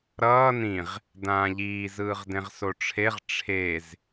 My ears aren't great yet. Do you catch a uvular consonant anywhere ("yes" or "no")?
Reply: yes